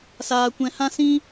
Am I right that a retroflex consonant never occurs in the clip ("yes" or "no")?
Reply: yes